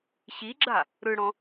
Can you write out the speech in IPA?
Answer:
ɕ i ɡ͡ǁ a | ɾ ɯ ɽ ɔ̃

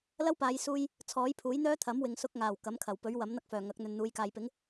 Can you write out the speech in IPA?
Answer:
l ɐ˥ w p aː˨˧ j s uː˧ j | t͡sʰ ɔː˨˥ j pʰ uː˨˥ j n̪ œː˥ t̪ʰ ɐ˨˥ m w ɪ˨ ŋ s ʊ˧ k̚ ŋ aː˨˩ w k ɐ˨˥ m kʰ ɐ˨˩ w p ɵ˨˥ ɥ w ɐ˨˥ m n̪ ɐ˥ k̚ f œː˨˩ ŋ ɐ˨˥ k̚ n̪ ɵ˨ n n̪ uː˨˧ j k aː˨ j p ɪ˨˥ ŋ

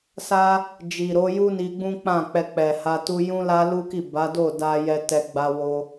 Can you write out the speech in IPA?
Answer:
s a˦ | d͡ʒ i˨ ɾ o˨˦ j u˦ n i˧ ɡ͡b ũ˦ k͡p ã˦˨ k͡p ɛ˧ k͡p ɛ˨ h a˧ t u˧ j ũ˦ l a˦ l u˦ k i˦˨ b a˨˦ d o˦˨ d a˧ j ɛ˧ t ɛ˧ ɡ͡b a˧ w o˧

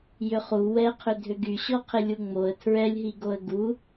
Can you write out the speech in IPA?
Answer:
j ʏ χ u w ɛ qʰ ʏ dʱ ʏ ɡ y ɕ ɔ qʰ ɪ lʲ u ŋ͡m o ə̯ tʰ ɹ ɛ lʲ ɦ i ɡ o ə̯ ɡ u

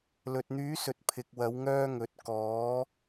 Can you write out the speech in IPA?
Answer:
l ɵ˨ t̚ n̪ yː˨˧ s ɵ˨ t̚ pʰ ɪ˨ k̚ w ɐ˨˧ w ŋ œː˧ ŋ ɵ˨˥ t̚ k ɔː˨˧

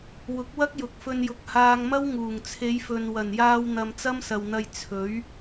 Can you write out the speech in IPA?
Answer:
w ʊ˨˥ k̚ w ɐ˥ k̚ j ʊ˨˥ k̚ f ɵ˧ n j ʊ˨ k̚ h aː˧ ŋ m ɐ˥ w ŋ uː˨˩ ŋ t͡sʰ e˨˧ j f ɵ˨ n w ɐ˨˩ n j aː˧ w n̪ ɐ˨ m t͡s ɐ˥ m s ɐ˨ w n̪ ɐ˧ j t͡sʰ ɵ˨˥ ɥ

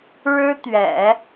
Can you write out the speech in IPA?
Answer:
ɻ ɻ̩˥ t̪ ɥ ɛ̰˨˩˦

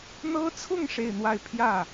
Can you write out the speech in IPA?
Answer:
n̪ ɤ˥ t͡sʰ ʊ˥˧ ŋ ʂ e˥˧ ɪ̯ n̪ w a˥˧ ɪ̯ pʰ j ä˥˩

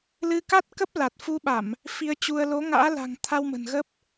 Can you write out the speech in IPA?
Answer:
l ɨ˧ k a˦˥ t̚ k ə˦˥ p̚ l a˨˩ t̚ f u˧ ɓ a˧˩˨ m | f i˧ ə̯ t͡ɕ u˧ ə̯ l o˨˦ ŋ a̰ː˧˥ l a̤˨˩ ŋ t̪ʰ a˧ w m ə̤˨˩ n ɣ ə˦˥ p̚

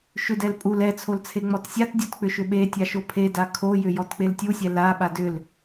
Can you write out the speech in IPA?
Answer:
ʃ ʏ d ɛ l pʼ u l ɛ t͡sʰ o l t͡sʰ e ŋ͡m ɔ t sʲ a t dʲ ɔ t k͡p ʏ ʃ ʏ ɓ e tʲ a ʃ o pʰ e d a kʰ o j ʏ j ɔ t k͡p e l tʲ u sʲ ɛ l a ɓ a d ʏ l

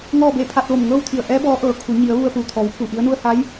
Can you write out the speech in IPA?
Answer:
ŋ ɔː˥˨ b e˥˨ pʰ a˧ t̚ ʋ o˧˩ m ŋ ɤː˥˨ w t̪ʰ i˧˩ ə̯ ʔ ɛː˧˥ b ɔː˧˥ ʔ ɤː˩ kʰ u˩˧ ɲ i˩˧ ə̯ ʋ u˧ ə̯ p u˩ t̪ʰ ɔː˩˧ w pʰ u˧˩ ʔ i˧˥ ə̯ n u˧ ə̯ h a˧˥ j

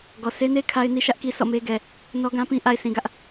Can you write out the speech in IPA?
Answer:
ɡ ɔ˨ s e˦ n e˦ kʰ a˦ ɪ̯ n i˦ ʃ ä˦ ʔ k i˦ s ɔ̰˦˨ m e˦ ɡ ɛ˨ | n ɔ˦ ɡ ã˦ p ĩ˦ ʔ a˨ ɪ̯ s ĩ˨ ɡ ä˦ ʔ

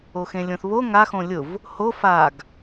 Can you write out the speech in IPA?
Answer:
o x ẽ lʲ õ θ β o ŋ a x õ lʲ ʊ v | h o f a ɡ

